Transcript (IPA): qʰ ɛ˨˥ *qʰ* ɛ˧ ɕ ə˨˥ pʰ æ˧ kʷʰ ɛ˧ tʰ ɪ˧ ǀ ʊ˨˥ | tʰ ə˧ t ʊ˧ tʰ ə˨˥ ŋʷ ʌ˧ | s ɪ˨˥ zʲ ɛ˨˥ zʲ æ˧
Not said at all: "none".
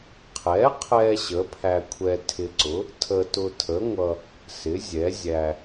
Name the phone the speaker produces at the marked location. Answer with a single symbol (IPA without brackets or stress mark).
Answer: qʰ